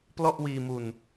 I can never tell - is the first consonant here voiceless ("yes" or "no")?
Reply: yes